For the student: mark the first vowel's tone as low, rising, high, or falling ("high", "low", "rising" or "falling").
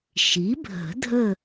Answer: rising